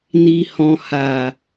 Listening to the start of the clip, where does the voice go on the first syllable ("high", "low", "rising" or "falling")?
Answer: low